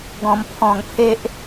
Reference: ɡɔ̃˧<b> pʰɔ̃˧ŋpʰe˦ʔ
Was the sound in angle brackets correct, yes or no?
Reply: no